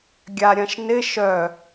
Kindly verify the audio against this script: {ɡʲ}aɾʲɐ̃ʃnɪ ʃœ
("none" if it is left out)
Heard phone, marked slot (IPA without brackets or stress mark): ɡʲ